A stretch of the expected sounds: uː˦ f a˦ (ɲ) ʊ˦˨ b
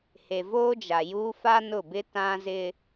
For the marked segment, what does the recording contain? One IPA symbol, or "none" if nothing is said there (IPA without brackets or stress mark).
n